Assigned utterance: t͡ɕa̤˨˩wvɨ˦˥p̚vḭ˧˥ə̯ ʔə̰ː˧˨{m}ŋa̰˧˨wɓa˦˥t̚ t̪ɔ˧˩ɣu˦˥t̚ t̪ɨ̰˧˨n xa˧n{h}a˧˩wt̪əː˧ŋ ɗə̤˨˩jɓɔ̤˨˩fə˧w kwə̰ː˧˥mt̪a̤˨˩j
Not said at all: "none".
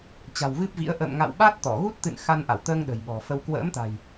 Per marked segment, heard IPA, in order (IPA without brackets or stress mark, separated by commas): m, ʔ